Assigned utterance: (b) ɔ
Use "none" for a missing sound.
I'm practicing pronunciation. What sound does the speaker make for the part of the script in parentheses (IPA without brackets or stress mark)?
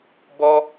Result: b